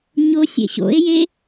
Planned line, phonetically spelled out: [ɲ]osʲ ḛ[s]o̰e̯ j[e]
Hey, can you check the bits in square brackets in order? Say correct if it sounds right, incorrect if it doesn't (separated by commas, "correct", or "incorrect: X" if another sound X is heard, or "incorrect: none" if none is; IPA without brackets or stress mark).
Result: correct, incorrect: ɕ, correct